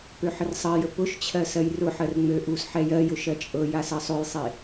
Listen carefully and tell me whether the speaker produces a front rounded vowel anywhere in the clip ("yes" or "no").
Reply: yes